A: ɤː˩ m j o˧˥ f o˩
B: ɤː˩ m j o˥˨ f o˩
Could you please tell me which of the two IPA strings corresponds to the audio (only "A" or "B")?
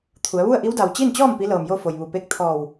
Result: B